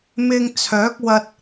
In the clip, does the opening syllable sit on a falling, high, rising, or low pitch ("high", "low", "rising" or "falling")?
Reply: low